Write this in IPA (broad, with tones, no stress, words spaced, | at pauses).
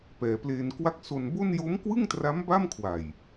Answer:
pɛː˩˦pleː˧nkwa˥˩k̚ so˧nbo˥˩n jo˦˥mkwɯ˥˩ŋtra˦˥m ba˥˩mkʰwa˨˩j